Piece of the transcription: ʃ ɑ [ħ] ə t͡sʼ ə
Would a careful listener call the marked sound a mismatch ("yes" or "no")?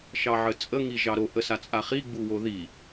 yes